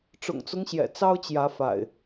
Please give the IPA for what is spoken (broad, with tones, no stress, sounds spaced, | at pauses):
ʈ͡ʂ ʊ̰˨˩ ŋ t͡s ʊ˦ ŋ ɕ j ɛ̰˨˩ t͡s ɑ˦ ʊ̯ t͡ɕ j ä˨˦ f a̰˨˩ ɪ̯